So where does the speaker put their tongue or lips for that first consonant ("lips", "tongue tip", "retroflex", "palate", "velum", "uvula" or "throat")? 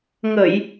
velum